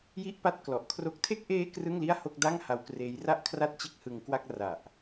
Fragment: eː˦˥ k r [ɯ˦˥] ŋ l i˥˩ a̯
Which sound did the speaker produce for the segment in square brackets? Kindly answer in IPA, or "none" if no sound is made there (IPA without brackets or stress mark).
ɯ˥˩